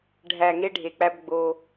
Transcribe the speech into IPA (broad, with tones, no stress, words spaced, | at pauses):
ɖʱæ˨ ŋe˦ɖʱe˨k͡pæ˦b ɡ͡bo˦